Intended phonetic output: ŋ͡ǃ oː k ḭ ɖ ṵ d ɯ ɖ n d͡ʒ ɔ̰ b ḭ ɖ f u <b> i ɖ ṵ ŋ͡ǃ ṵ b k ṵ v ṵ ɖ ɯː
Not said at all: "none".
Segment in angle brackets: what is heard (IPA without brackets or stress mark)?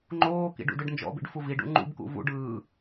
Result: v